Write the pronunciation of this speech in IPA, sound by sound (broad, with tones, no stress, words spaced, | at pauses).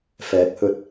fɛː˨˥k̚hɵ˧t̚